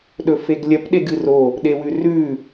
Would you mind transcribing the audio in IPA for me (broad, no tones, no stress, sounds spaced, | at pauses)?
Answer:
ɗ ɵ f e ɡ lʲ ɐ p ɗ e ɡ ɨ r o | ɗ e w ʉ r ʉ